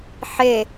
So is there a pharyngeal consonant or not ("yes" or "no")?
yes